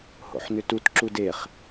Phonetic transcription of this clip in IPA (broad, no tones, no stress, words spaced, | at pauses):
ho̰ħnʏtut ǁudeχ